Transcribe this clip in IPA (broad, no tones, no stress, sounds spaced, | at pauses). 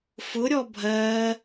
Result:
f ʊ ɾʲ ɔ bʱ ɜː